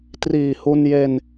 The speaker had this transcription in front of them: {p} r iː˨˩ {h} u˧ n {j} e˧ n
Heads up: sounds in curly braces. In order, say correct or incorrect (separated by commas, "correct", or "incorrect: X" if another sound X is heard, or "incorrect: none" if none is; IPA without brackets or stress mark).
incorrect: t, correct, correct